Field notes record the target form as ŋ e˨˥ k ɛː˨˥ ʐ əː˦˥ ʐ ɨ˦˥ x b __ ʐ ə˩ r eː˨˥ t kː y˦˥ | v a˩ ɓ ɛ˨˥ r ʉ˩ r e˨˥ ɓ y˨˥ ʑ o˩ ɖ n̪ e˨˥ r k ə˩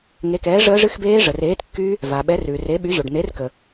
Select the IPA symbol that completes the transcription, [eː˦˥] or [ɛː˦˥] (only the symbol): eː˦˥